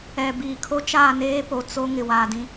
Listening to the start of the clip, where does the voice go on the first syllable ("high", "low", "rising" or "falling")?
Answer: low